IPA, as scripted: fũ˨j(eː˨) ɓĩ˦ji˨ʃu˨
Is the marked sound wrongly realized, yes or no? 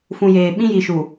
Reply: no